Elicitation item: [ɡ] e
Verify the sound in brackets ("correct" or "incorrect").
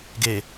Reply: correct